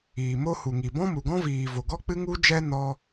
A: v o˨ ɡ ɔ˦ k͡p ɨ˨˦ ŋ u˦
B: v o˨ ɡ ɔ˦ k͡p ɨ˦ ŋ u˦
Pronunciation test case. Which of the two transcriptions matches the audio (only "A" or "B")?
B